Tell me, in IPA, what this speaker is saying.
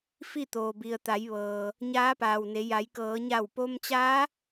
f i˥˨ t̪ oː˩ b i˩ ə̯ t̪ a˩˧ j ʋ ɤː˩ | ɲ aː˧˥ p aː˩ w n e˩˧ j a˩˧ j k ɤː˩˧ ɲ a˧˩ w p o˧ m t͡ɕ aː˧˥

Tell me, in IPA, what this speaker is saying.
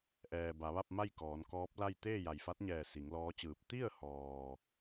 ʔ ɛː˩ b a˩˧ ʋ a˥˨ p̚ m a˥˨ j k ɔː˩˧ n k ɔː˧˥ p̚ l a˥˨ j t̪ eː˥˨ j a˩ j f a˧˥ t̚ ɲ ɛː˧˩ s i˩˧ ŋ l ɔː˧˥ t͡ɕ ɯː˧˩ p̚ t̪ i˥˨ ə̯ h ɔː˩

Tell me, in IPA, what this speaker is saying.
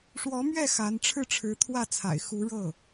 ʂ w ɔ˧˥ m ɥ ɛ˥˩ x a˧˥ n ʈ͡ʂʰ ɻ̩˥˩ ʈ͡ʂʰ ɻ̩˧˥ t̪ʰ w ä˥˩ t͡sʰ a̰˨˩ ɪ̯ x u˧˥ ɻ ɤ˥˩

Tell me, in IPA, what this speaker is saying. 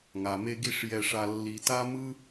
ŋ a˩ m e˧ ɡ i˧ ʂ j ɛ˧ ʂ a˧ lː i˧ t a˥ m ɯ˥

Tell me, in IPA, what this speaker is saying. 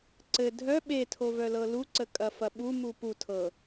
ǀ ɘ dʱ œ ɓ e tʰ o v œ l ɤ l u ǀ ə kʼ ɐ f ɐ ɓ u m u p u tʰ ɤ

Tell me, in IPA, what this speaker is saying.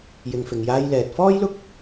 j ɪ˨ ŋ f ɪ˨ ŋ j aː˧ j l ɛː˨ t̚ f ɔː˥ j l ʊ˥ k̚

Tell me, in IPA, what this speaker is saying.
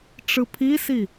ʈ͡ʂ ɯ pʰ i s i

